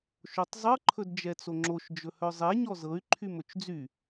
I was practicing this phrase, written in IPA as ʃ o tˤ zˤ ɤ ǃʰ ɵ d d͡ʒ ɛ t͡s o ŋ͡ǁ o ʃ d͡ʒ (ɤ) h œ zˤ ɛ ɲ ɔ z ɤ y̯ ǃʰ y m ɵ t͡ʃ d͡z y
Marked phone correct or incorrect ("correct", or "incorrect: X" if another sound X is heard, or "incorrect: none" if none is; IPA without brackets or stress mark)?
incorrect: ɵ